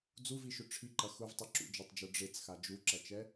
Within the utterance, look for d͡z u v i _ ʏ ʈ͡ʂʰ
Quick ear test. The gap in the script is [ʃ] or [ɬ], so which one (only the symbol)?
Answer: ʃ